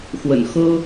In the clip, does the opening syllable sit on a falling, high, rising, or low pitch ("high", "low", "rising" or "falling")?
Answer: low